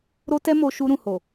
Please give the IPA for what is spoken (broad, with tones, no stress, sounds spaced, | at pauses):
ɾ o˦ t ɛ˦ m o˧ ʃ u˧ ɾ ũ˨ h o˨